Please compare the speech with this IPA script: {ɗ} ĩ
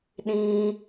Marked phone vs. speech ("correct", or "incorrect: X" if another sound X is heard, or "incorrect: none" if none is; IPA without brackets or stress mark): correct